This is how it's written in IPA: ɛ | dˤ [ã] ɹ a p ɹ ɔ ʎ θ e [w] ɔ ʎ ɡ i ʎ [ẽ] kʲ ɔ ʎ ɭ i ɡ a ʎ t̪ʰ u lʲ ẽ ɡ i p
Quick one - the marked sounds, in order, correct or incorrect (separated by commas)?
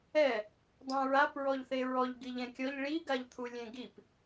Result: correct, incorrect, incorrect